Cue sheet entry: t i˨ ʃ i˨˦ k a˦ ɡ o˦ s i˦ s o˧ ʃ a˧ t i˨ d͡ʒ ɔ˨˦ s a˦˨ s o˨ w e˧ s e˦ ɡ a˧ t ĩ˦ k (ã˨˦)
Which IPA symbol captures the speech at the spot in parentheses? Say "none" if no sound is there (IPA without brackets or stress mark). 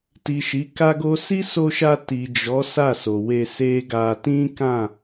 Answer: ã˦˨